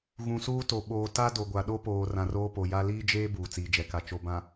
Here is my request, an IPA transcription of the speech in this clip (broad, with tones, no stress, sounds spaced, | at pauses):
ɣ ũ˨ s uː˦ t o˨ ɓ oː˨ t a˦ d o˨ ɡʷ a˨ ɗ o˦ p oː˨ r ã˨ r oː˦ p o˨ j a˦ l iː˦ d͡ʒ eː˦ b uː˨ t͡s iː˨ d͡ʒ ɛ˨ k a˨ t͡ʃ o˨ b ã˨